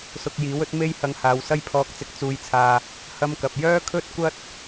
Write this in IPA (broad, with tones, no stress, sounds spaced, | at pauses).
s ʊ˧ k̚ j iː˨˥ w ɵ˥ t̚ m e˥ j h ɐ˧ ŋ h aː˨˧ w s ɐ˥ j pʰ ɔː˧ k̚ t͡s ɪ˧ k̚ t͡s uː˧ j t͡sʰ aː˧ | h ɐ˥ m k ɐ˨ p̚ j œː˥ kʰ ɵ˥ t̚ kʷ ɐ˥ t̚